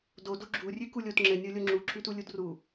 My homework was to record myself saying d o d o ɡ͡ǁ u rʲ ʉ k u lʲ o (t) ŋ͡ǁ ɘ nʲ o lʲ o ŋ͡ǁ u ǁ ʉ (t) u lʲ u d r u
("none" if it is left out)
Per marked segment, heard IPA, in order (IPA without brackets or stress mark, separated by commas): t, t